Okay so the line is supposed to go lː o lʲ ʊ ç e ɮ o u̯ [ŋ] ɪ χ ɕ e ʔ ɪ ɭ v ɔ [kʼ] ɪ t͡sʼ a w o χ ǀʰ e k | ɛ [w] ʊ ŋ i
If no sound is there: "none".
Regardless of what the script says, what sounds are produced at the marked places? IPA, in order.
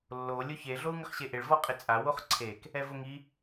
ŋ, qʼ, v

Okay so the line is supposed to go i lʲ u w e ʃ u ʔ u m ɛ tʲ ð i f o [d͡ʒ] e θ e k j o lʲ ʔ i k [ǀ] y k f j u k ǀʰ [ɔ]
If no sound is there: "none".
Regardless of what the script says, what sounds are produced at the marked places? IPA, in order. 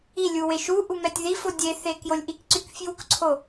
dʲ, ǀ, o

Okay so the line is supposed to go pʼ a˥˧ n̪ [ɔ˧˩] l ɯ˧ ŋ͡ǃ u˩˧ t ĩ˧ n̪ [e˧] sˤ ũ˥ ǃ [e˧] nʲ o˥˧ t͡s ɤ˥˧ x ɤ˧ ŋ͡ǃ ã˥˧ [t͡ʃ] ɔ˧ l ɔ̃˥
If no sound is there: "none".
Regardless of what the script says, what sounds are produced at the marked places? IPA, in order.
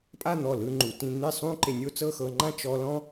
ɔ˧˩, e˥˧, e˧, t͡ʃ

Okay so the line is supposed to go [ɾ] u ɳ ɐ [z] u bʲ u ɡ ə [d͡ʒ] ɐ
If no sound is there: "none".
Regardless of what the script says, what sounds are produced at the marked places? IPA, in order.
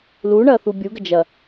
l, θ, d͡ʒ

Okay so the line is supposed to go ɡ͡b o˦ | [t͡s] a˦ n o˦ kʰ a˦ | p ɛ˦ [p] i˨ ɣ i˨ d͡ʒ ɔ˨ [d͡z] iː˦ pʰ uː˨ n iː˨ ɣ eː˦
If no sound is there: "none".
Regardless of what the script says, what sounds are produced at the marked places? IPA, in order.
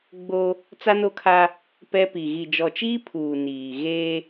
t͡s, p, t͡ʃ

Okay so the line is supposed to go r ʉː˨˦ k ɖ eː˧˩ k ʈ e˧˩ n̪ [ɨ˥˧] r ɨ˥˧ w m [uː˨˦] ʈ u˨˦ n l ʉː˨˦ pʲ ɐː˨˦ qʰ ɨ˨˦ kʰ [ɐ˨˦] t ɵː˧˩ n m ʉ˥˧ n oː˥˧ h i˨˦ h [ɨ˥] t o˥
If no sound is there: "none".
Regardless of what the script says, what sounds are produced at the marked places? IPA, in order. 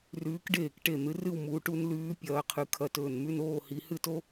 ɨ˨˦, uː˨˦, ɐ˧˩, ɨ˥

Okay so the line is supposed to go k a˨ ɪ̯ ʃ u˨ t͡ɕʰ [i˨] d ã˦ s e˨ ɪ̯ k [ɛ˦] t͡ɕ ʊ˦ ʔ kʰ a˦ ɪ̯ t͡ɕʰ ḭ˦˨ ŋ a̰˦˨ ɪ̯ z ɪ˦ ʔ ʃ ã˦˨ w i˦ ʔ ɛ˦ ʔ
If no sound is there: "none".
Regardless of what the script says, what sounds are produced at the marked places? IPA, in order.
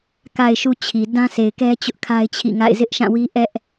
i˨, ɛ˦

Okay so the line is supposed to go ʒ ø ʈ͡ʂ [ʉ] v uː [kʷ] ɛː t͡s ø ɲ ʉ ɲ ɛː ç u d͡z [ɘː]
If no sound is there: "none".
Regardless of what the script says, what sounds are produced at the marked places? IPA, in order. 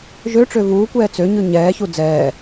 ø, kʷ, ɛː

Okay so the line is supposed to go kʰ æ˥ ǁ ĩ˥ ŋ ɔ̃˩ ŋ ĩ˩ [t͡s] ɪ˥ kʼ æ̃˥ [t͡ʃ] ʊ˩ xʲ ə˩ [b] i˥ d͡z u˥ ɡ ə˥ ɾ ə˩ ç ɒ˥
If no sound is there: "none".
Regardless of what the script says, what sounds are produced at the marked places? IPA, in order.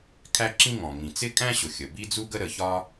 t͡s, ɕ, b

